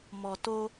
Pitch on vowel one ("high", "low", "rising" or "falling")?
low